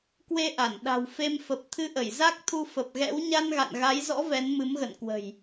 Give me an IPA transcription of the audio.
k w e˧ ʔ a˧˩ n ɗ a̤˨˩ w f e˧ m f ə˨˩ p̚ t̪ʰ ɨ˧ ʔ ə˧˩ j z a˦˥ k̚ t̪ʰ u˧ f ə˨˩ p̚ ɣ ɛ̰˧˥ w ɲ a˧ n ɣ a̰˧˨ n ɣ a˨˦ j z ɔ̰˧˥ v ɛ˨˦ n m ɨ˨˦ m ɣ ə̰˧˨ n k w ə̤˨˩ j

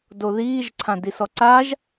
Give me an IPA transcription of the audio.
d o ð iː ʒ ǀʰ ã d i s ɔ ǀ a ʒ

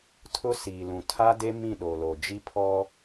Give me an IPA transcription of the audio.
tʰ ʊ˦ s iː˨ l ũ˨ tʰ a˦ d e˦ m ĩ˦˨ ɗ o˨ l o˨ d͡ʒ i˦ pʰ ɔ˦

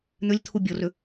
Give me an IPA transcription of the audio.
n̪ ʏ lʲ t̪ʰ u bʲ ɤ r ʏ

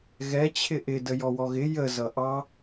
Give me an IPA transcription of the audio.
ɣ ɛ t͡ɕʰ ɪ ʔ ɪ d ə j ɔ w ɔ ɣ ɪ j ə z ʌ ʔ ɑ

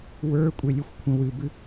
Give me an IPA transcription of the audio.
w ə˞ kʷʼ e lʲ ø xʷ kʷʰ ə̃ w ɨ b ɨ

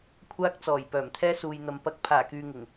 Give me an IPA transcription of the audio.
kʷʰ aː˧ k̚ t͡s ɔː˨˩ j p œː˨˩ m t̪ʰ ɛː˧ s uː˨ j n̪ ɐ˨ m p ɐ˨˥ k̚ pʰ aː˨˩ k yː˨ ŋ ɪ˨˩ ŋ

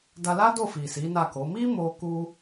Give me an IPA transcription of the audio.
d a˧ l a˦ d o˦˨ f i˨ s i˨˦ n a˦˨ k o˨˦ m i˦ m o˧ k u˧

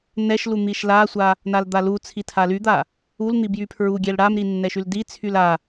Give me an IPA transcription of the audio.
n ɛ ʃ l u n̪ i ʃ l a sʷ a | n a l d̪ a l u t͡sʰ i tʰ a l y d̪ a | u l n̪ i b j y pʰ ɹ u ɡʲ ɛ l ɽ a m ɾ i nː ɛ ʃ y l d i t͡sʰ y l a

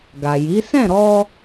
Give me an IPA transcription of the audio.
ɡ a˨ j i˨˦ s ɛ̃˦˨ ɾ ɔ˧

